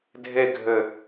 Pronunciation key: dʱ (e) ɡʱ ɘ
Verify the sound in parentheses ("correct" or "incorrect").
correct